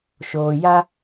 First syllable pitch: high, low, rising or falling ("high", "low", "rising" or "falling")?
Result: low